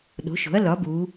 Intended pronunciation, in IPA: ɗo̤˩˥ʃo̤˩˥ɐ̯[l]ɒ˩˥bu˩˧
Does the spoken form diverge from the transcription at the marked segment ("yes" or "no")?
no